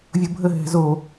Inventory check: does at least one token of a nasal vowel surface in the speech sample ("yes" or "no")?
no